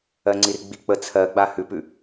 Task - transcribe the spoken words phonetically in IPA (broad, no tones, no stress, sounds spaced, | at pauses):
ɜ ŋ͡ǀ i r ɡ͡b i k͡p ə t͡sʰ ɜ ɡ͡b a h ʉ p ʉ